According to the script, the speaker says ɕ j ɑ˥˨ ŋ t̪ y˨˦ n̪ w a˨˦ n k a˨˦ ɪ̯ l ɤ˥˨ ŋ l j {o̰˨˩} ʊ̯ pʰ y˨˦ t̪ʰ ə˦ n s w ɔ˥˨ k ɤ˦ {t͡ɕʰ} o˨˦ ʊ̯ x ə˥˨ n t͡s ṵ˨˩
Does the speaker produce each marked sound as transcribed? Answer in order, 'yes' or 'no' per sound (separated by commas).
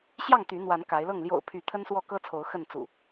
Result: yes, no